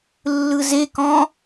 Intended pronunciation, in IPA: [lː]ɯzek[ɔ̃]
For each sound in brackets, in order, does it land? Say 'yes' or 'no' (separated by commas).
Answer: yes, yes